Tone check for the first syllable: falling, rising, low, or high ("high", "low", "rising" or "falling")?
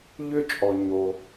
high